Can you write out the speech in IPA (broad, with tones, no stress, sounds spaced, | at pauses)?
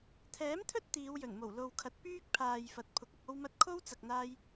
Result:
t̪ʰ ɛː˨˥ m t̪ʰ ɵ˥ t̚ t̪ iː˨˧ w j ɵ˨˩ n m o˨˩ w l o˨ w kʰ ɐ˨˥ t̚ p yː˥ k̚ pʰ aː˨ j f ɐ˨˥ t̚ pʰ ʊ˨˥ k̚ ɐ˧ k̚ o˥ w m ɐ˥ t̚ kʰ o˥ w t͡s ɐ˨ k̚ n̪ aː˧ j